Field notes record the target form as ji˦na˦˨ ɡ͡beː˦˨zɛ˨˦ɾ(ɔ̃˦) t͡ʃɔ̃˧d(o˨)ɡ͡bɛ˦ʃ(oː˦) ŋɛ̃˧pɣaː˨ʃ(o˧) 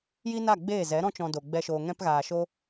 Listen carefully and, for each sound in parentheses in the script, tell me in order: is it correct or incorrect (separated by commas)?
correct, correct, incorrect, correct